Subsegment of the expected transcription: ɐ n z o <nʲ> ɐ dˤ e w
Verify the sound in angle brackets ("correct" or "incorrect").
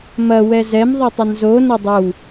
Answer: incorrect